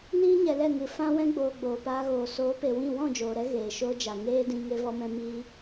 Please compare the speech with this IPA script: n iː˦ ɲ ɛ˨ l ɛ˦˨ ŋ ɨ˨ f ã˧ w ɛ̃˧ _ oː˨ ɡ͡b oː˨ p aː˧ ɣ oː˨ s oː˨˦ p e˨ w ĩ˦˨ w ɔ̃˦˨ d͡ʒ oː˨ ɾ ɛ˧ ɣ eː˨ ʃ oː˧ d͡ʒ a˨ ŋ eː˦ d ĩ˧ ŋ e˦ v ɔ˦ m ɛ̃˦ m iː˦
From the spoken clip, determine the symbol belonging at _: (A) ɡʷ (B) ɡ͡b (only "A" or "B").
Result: B